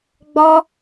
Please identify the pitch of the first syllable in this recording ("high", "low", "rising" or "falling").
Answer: high